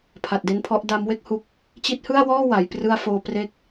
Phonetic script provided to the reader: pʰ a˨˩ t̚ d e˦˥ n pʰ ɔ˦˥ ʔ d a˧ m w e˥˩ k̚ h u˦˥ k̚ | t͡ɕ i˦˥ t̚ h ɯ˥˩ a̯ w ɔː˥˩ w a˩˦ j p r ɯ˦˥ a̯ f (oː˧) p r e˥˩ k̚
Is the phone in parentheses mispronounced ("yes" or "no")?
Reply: no